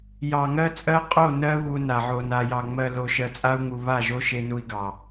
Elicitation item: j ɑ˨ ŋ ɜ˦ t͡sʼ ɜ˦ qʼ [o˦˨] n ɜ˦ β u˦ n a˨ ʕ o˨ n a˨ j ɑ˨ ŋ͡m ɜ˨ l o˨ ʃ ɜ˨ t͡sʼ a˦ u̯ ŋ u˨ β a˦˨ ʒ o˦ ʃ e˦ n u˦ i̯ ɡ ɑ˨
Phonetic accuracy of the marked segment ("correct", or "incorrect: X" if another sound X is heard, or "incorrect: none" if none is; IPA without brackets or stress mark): correct